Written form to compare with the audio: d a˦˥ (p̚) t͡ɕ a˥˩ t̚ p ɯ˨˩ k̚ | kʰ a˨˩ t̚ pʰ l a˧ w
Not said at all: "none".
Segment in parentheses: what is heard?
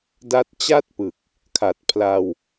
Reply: t̚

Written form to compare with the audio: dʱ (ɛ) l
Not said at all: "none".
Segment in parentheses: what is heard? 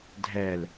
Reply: ɛ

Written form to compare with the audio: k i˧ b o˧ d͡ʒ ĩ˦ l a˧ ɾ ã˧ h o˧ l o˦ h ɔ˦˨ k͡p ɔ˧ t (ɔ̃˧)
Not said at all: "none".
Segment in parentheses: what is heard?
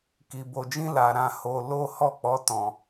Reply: ɔ̃˧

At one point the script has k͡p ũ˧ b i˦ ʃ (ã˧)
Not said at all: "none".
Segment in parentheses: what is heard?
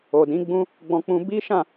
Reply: ã˦˨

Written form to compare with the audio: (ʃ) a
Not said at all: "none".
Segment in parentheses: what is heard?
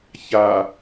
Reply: ç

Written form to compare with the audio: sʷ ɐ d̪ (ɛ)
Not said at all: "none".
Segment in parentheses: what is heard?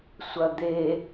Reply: e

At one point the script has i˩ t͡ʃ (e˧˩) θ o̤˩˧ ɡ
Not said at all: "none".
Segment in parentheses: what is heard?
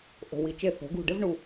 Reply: e˧˩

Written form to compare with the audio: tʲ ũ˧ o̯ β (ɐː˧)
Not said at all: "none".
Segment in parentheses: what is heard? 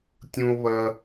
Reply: ɐː˧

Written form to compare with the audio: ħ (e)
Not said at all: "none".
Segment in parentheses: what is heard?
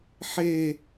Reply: e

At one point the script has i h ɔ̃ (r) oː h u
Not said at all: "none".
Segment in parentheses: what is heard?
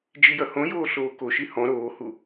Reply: ɾ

